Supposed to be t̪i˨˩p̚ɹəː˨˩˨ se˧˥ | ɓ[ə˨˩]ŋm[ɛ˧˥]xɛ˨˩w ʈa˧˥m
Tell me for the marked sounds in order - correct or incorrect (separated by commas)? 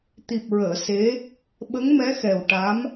incorrect, correct